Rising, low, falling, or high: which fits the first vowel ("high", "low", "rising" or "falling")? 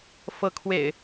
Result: rising